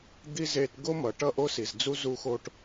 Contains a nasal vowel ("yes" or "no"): no